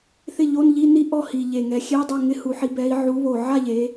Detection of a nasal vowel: absent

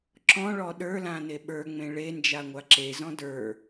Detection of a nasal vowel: present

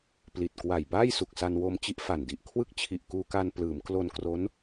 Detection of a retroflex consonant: absent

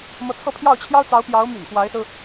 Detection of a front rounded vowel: present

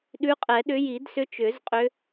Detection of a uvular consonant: present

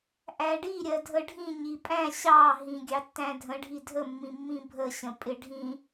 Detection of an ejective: present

